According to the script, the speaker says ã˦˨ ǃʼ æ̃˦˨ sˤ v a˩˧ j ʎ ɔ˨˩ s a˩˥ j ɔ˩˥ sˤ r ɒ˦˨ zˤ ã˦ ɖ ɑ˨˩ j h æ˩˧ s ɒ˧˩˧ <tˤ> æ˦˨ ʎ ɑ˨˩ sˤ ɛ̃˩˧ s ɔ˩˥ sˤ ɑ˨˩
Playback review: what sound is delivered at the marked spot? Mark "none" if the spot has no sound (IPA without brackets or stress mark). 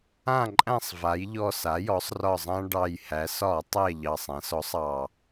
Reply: tˤ